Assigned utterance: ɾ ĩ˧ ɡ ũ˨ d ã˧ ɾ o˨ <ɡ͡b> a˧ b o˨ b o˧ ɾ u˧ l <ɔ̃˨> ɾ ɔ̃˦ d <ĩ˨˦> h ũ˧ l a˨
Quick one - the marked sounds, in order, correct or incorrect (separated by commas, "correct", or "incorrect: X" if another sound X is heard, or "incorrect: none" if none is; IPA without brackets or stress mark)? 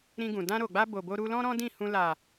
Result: correct, incorrect: ɔ̃˦, incorrect: ĩ˦˨